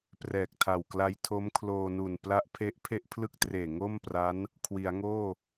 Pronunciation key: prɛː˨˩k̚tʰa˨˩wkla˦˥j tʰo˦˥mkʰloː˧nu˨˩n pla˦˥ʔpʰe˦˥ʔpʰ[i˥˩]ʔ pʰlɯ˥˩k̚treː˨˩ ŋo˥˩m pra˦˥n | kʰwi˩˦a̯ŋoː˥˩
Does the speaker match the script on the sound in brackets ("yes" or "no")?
no